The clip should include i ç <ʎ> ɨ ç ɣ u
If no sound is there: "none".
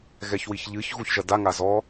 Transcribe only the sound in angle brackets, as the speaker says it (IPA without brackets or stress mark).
ʎ